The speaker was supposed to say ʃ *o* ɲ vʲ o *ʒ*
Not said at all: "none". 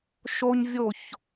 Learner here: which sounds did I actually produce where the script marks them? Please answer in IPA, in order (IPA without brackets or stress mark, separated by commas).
o, ç